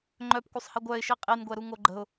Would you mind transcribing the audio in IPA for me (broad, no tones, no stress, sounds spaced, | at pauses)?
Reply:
ŋ͡ǃ œ p kʷ œ sˤ h i ɡʷ œ ɪ̯ ʃ i qʼ i n ɡʷ ɛ ɾ u ŋ o ɡ͡ǃ ə̤ ʊ̯